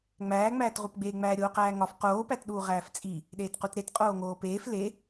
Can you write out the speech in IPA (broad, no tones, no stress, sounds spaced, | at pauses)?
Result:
ŋ͡m æː ŋ͡m æː t ʁ u p ɡ͡b eː ŋ͡m æː ɾʲ oː q æː ŋ ɒ f q oː p æ t ɗ uː ʁ æː f t͡sʼ i | ɗ eː t q u t ɾ e t qʼ oː ŋ oː p eː f l e